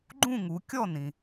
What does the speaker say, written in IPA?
ɡ͡ǃ ũ˥˧ ŋ u˩˧ kʲ ɔ˥˧ n ĩ˩

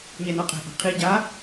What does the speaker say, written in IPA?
ɲ ɛ n ɔ qʼ ɛ̤ ʔ a̤ qʰ i ɟ a

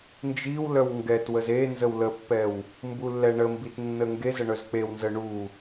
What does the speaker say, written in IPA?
n d͡ʒ i w l œ w ŋ ɡ ɛ t w ə z e n z ə w l ə pː ɛ w | m b u lː ɛ ɳ ə m b i t nː ə ŋ ɡ e z ə ɳ œ z k͡p e w n z ə ɳ u

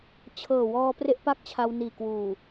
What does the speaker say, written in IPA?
t͡ɕʰ ɤː˨˩ w ɔː˧ p r e˥˩ ʔ p a˥˩ k̚ t͡ɕʰ a˧ w n iː˨˩ k w uː˨˩

